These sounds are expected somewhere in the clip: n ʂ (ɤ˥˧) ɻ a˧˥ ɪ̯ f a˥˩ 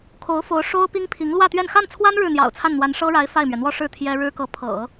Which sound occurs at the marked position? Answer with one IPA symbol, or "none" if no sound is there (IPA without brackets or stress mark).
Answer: ɤ˥